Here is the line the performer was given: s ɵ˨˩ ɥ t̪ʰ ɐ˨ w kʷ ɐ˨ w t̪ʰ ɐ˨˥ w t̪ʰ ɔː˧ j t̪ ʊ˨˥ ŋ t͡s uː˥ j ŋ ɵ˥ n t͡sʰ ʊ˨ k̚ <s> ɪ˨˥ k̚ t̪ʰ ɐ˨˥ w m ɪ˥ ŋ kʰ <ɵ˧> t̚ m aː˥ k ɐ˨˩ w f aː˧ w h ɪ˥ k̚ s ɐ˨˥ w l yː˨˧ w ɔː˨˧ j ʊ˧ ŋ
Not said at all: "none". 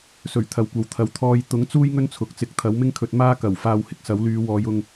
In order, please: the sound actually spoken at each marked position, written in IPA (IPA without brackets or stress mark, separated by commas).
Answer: t͡s, ɵ˧